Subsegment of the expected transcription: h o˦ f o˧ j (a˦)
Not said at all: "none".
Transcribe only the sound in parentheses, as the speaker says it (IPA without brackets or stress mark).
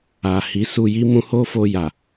a˨